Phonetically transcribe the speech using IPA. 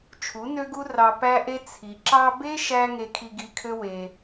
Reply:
t͡ʃʰ u˨˦ n ø˦ ɡ u˦ r ɑ˧ p æ˦ ʔ e˦ t͡sʰ i˨ ǁ ɑ˧ b e˦ ʃ æ˧ ŋ e˧ kʰ i˧ ɡ i˧ kʰ ø˦ w e˧

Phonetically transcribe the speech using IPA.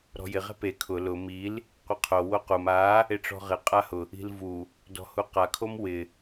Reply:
ɾ ɔ̤ j ɪ ʁ ɛ̤ p e kʰ ʊ l ʊ m i l | qʷ ɪ qʰ o w o q u m a | e ʈ͡ʂ ɔ̤ ʁ ɪ qʼ a h ʊ | i̤ l v u | d ɔ̤ h u q a kʰ o m w ɪ

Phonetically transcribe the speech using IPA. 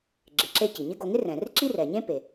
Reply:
ɡ͡ǁ ɪ˩ ǁ e˧ c i˩ ɲ ɪ˥ ɡ o˧ ŋ ɪ˥ r ɛ̃˩ r ǁ i˥ r ɛ˩ ɲ ẽ˥ p e˩

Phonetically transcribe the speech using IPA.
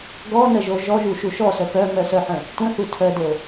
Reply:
ɡ ɔ n ə ʒ o ʒ ɔ ʒ u ʃ u ʃ ɔ s œ p œ m œ s œ ħ ə̃ | tʷ ə̃ θ u tʰ œ d o

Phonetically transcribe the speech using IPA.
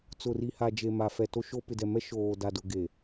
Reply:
t͡s ʊ˨ r i˨ h a˨ d͡ʒ e˨ m a˨ f ɛ˨ t o˦ ʃ o˦ p ɪ˨ d ɛ˨ m ɛ˦ ʃ oː˨ d a˨ d ʊ˨ ɡ e˨

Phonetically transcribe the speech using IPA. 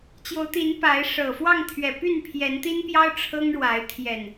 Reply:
t͡ɕ j o˨˦ ʊ̯ t̪ i˨˦ n p a˨˦ ɪ̯ ʂ ɤ˨˩ f w ɑ˥˨ ŋ t̪ʰ ɥ ɛ˨˩ p y˥˨ n pʰ j ɛ˨˦ n t̪ i˦ n p j ɑ˦ ʊ̯ ʈ͡ʂʰ ɤ˦ ŋ ɻ w a˨˦ ɪ̯ t̪ʰ j ɛ˨˩ n

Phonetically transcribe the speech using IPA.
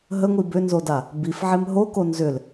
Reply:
ɦ ə ŋʷ i b ʏ n z o d a | b i f ʕ e m ɦ o k o n z ʏ l

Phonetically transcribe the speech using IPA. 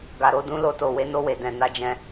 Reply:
ɡ a˨ ɾ o˧ d ũ˧ l o˧ t o˨ w e˧ n o˧ w e˨ d ɛ̃˨ n a˧ d͡ʒ ɛ̃˧

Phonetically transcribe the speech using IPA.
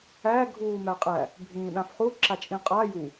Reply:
æ ɡʱ uː m æ qʼ æ | bʱ ĩː ɗ ã f χ u ǁ a t͡ʃʼ ĩ qʼ a j u

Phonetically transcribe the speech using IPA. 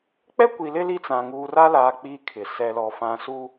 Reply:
k͡p ɛ˦ kʷ i˨ l ɪ˦ l i˦ t͡s ã˨ ŋ uː˨ r a˦ l aː˨ k͡p iː˦ kʰ ɪ˨ s ɛ˨ l ɔ˨ f ã˨˦ s u˦

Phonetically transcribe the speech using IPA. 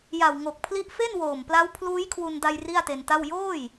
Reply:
j a˨˩ w ŋ o˨˩ k̚ pʰ l i˦˥ ʔ f e˥˩ n w oː˨˩ m p l a˦˥ w pʰ l uː˦˥ j kʰ w u˧ n d a˧ j r i˥˩ a̯ t e˧ n t a˥˩ w j oː˥˩ j

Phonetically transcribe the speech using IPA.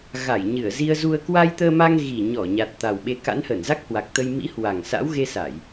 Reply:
ɣ a˧˩ j ɲ ɨ˧˩ ə̯ z i˧ ə̯ z u˧ ə̯ k w a˧ j t̪ əː˧ m a˧ ŋ ɣ i˨˩ ɲ ɔ˧˩ ɲ a˨˩ t̚ t̪ a˨˩ w ɓ e˧ k a̰˧˥ n h əː˧˩ n z a˦˥ k̚ h w a˨˩ k̚ t̪ ə˧ j m ḭ˧˥ h w a˨˩ ŋ s a̰˧˥ w ɣ e˧ s a˧˩˨ j

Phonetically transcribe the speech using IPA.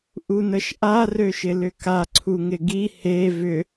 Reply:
ʔ u n ə ʃ ʔ a r ø ʃ ɪ l ʏ k a ǀʰ u ŋ ɪ ɡ i h e v ʏ

